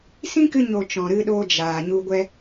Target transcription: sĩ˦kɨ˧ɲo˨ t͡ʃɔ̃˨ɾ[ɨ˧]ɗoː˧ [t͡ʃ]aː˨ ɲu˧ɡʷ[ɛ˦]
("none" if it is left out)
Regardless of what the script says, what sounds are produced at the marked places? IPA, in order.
ɨ˧, d͡ʒ, ɛ˦

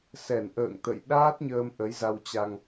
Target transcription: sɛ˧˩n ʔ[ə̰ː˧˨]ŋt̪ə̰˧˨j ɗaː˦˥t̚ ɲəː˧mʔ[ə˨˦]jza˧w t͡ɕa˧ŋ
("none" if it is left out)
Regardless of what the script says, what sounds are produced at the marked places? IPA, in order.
ə̰ː˧˨, ə˨˦

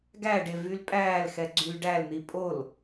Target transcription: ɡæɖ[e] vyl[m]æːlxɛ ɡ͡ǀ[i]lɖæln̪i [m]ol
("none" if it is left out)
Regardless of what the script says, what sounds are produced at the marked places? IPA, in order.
e, pʼ, y, pʼ

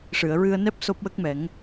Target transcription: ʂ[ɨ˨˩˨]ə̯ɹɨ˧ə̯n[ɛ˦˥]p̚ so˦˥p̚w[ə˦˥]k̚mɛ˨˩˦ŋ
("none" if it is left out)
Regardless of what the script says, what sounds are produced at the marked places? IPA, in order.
ɨ˨˩˨, ɛ˦˥, ə˦˥

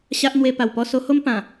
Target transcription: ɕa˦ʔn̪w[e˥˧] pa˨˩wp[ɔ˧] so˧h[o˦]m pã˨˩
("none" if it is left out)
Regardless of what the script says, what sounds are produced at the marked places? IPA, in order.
e˧, ɔ˥˧, o˦

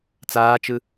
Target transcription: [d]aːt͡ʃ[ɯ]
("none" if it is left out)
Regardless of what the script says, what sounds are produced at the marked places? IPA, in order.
t͡s, ɯ

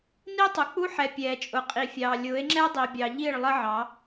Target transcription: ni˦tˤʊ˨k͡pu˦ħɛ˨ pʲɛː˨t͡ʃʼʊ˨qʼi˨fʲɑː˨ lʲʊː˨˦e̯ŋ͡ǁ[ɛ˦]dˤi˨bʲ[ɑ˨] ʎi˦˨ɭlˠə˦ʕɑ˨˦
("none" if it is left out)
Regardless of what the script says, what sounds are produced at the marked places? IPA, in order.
ɛ˦, ɑ˨

